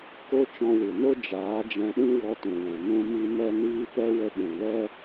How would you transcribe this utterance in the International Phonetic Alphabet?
ko˦ t͡ʃɔ̃˧wɨ˨no˦ d͡ʒaː˨˦d͡ʒɛ̃˧ɗĩ˦ wɔ˧tũ˨wɛ̃˨ nũ˧mi˧ mɛ˦niː˦ pɛ˦ wə˧ɓũ˨lɛ˦

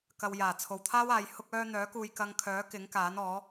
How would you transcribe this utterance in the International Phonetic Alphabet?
kɐ˨w jaː˨˩t͡sʰo˨wt̪ʰaː˥waː˨˧j hʊ˧k̚œː˧ n̪œː˨˥kuː˨j kɐ˧ŋkʰœː˨˥ kɪ˨˥ŋkaː˨˥nɔː˨˥

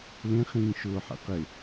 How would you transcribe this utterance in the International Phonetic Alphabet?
lẽχĩː ʃʊːħɛ̰ qɪ

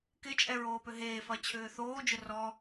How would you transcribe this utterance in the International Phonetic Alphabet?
kɪt͡ʃʼɛ ɹoːpʏɦeːfɐ t͡ɕʰʏːθoːd͡ʒʊ rɔ

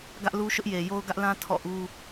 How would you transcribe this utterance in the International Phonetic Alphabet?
ɡä˦ʔlu˦ʃʊ˦ʔje˨ jo˦ʊ̯ɡä˦ʔlã˦ tʰɔ̰˦˨ʔu˦

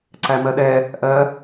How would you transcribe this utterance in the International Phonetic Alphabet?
ǀæmɜɗɛ | ʔɜ

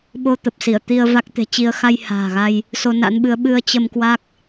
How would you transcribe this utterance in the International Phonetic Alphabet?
ɓo˧t̪ə˨˩p̚si˧˩ə̯ t̪i˧ə̯va˦˥k̚t̪e̤˨˩t͡ɕi˧ə̯ xa˧j ha̤ː˨˩ɣa˧j | so˧na̰˧˥nɓɨ˨˦ə̯ ɓɨ˧ə̯t͡ɕə˧m kwa˦˥k̚

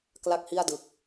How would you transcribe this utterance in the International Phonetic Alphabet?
kla˥˩k̚hi˥˩a̯dɯ˨˩k̚

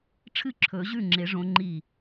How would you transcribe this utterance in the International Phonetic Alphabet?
ʈ͡ʂʰɨ˥˩ǁʰɵ˨˩˦ʑʉ˥˩ŋ͡ǁe˨˩˦ ʐõ˨˥ŋ͡ǃi˥˩

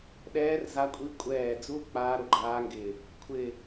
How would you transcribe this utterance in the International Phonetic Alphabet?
ɗɛː˦˥rza˦˥kʷʼi˦˥ kʷʼɛː˧˩d͡zu˦˥ k͡paː˦˥ɾʊ˧˩ɡ͡ǃaː˦˥ŋɡɪː˧˩ | kʷʰɪː˧˩

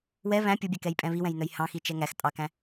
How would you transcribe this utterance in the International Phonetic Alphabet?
wɛ βæ̃ pʲubʲɛkɛjpʼɛ̃ βiwɛ̃jnœj hɑ̃xit͡ʃɛ ŋæx tʼɑkæ̃

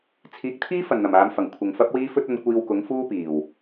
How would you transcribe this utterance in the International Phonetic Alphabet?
t͡sʰiː˨˥k̚t̪ʰiː˥fɐ˨˩n n̪ɐ˨˩maː˨˧mfɐ˨˩ŋ kʷʰɪ˨ŋfɐ˥p̚wiː˥ fɵ˥t̚ɐ˨˧n kʷiː˧wkʊ˨˥ŋfuː˥ piː˨˩w

